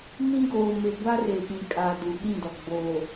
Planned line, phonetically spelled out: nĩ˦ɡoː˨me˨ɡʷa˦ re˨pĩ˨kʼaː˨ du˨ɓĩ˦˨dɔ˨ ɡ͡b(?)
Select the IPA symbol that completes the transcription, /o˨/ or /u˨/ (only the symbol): o˨